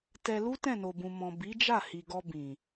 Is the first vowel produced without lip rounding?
yes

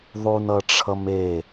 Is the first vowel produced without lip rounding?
no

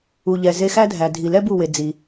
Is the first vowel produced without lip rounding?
no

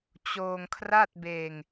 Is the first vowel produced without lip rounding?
no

